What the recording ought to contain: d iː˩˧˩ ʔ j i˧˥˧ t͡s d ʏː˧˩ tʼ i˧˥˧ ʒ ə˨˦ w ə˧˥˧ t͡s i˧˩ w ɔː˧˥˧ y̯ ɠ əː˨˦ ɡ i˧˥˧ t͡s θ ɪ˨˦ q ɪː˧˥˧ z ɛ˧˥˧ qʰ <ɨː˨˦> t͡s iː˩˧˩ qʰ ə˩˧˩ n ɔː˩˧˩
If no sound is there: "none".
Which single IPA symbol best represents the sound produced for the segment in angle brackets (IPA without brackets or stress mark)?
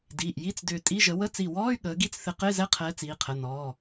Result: ɛː˨˦